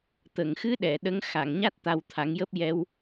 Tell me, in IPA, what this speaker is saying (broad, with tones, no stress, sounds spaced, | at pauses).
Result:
t̪ ə˨˩˨ ŋ x ɨ˧˥ ɗ ɛ˨˩˨ ɗ ə˧˥ ŋ x a˨˩˨ ŋ ɲ a˦˥ t̚ t̪ a˧ w t̪ʰ a˨˩˦ ŋ j əː˦˥ p̚ j ɛ˧ w